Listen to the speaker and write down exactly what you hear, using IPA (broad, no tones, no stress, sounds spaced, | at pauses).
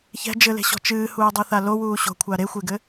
ç ɛ̤ d͡ʒ ɘ l e̤ ɕ ɔ̤ t͡ʃ ɨː h uː dˤ u θ a l o w uː ɕ o̤ kʷʰ a ɾ e xʷ e ɡ ɘ